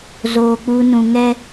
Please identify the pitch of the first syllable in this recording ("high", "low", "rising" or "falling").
high